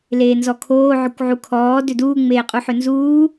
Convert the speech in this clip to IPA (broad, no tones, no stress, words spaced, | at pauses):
leːnzɔkʰoː ʕʏkʷʕukʰɔː dʏduː ŋ͡meːqʼuħʏnzuː